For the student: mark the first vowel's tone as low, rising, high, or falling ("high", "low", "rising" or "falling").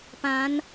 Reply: rising